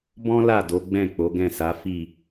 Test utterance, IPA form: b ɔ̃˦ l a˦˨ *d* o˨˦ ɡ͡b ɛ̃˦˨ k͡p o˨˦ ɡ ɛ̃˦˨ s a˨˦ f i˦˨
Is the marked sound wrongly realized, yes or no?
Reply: no